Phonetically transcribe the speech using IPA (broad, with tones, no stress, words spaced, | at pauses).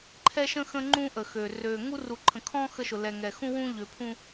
ǃʰɛ˦ʃə̃˦ xə̃˦ŋ͡ǃũ˦ ʔə˨xø˨ røː˨ŋu˦ ru˨ǃʰə̃˨kʰɔ̃ː˦ xə˦ʃʊ˨ lɛ˨ŋɛ˨ xũ˦wũ˦ ʎø˨pʰũ˦